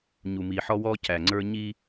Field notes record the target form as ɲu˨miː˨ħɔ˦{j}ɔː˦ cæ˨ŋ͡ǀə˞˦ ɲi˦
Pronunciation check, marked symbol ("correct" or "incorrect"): incorrect